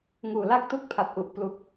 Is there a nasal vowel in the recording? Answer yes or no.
no